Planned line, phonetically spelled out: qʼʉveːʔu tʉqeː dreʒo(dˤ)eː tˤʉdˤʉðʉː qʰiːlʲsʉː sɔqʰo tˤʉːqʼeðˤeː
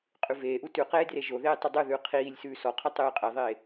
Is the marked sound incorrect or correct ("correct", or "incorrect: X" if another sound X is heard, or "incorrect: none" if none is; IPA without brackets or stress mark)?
incorrect: ð